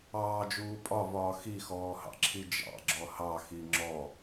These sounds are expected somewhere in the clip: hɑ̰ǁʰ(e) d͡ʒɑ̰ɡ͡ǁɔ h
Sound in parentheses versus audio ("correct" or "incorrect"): incorrect